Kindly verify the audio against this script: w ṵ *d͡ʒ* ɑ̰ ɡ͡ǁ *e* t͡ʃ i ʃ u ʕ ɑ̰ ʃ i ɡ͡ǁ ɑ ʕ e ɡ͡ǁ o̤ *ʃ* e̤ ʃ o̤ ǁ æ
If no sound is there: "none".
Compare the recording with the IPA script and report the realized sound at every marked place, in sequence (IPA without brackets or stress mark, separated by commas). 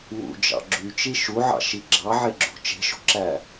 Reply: d͡ʒ, y, t͡ʃ